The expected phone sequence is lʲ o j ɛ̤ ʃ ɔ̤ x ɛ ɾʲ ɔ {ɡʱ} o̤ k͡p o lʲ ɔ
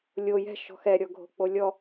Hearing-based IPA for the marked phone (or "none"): ɡʱ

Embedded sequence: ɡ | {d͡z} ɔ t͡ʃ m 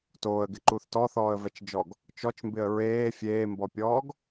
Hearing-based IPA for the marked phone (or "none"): t͡ʃ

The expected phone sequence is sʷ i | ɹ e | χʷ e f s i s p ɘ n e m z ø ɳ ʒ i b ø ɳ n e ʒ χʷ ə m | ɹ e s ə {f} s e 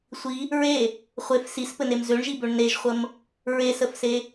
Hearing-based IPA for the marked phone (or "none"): f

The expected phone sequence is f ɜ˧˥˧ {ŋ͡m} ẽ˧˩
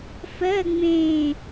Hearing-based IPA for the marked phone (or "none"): ŋ͡m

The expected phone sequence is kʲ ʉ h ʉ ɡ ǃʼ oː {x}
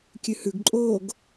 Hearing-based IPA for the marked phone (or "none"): ɡ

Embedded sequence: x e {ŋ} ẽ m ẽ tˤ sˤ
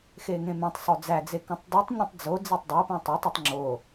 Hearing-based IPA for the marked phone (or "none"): ŋ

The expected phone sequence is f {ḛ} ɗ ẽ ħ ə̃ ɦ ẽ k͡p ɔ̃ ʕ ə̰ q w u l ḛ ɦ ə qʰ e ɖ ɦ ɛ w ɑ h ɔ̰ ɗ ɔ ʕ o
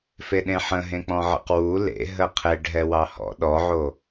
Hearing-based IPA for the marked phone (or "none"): e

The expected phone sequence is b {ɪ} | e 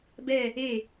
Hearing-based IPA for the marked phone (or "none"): ɛ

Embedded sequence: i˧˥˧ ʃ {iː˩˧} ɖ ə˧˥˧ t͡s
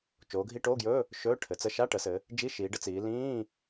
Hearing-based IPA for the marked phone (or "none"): iː˩˧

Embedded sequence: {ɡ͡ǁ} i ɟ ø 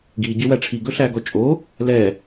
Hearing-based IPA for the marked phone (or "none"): ɡ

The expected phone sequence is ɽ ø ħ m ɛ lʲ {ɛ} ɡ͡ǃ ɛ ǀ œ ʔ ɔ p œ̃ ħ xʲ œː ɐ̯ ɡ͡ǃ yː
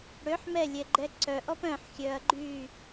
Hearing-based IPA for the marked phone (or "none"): ɛ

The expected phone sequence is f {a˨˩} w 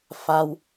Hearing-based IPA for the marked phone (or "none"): a˧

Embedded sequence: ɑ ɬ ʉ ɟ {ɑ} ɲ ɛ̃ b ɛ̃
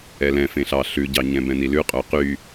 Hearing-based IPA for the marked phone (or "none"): ɑ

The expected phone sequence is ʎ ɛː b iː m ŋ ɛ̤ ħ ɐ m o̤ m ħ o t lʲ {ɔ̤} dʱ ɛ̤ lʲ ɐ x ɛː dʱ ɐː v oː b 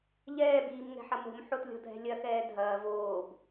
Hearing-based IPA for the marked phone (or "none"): ɔ̤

